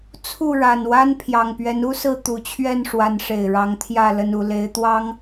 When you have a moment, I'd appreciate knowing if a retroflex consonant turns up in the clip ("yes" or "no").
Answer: yes